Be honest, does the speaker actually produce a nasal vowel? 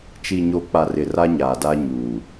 no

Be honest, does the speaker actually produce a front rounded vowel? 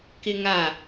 no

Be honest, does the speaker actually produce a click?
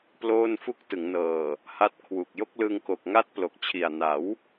no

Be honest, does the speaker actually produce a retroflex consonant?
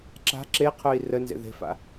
no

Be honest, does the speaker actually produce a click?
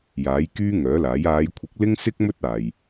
no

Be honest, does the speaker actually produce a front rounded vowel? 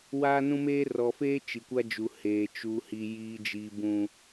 no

